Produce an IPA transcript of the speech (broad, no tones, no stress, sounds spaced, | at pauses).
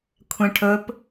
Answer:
kʷʰ ɛ̃ ʈʰ ɵ p